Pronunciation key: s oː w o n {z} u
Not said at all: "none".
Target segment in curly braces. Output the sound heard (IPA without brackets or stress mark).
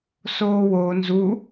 z